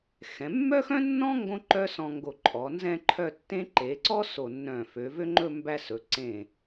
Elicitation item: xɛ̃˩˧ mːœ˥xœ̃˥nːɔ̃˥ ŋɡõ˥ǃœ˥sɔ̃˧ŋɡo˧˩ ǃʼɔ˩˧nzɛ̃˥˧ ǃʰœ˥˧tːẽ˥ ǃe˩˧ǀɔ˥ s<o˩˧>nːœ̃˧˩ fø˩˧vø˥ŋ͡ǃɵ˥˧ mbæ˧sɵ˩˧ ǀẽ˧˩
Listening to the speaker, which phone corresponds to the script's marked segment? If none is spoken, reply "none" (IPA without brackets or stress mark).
o˧˩